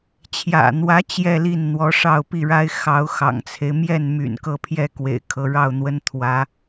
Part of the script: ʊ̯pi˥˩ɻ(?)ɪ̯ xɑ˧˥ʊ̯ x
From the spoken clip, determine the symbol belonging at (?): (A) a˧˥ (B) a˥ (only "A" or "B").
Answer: B